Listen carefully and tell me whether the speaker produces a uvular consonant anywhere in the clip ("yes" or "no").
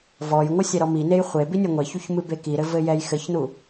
yes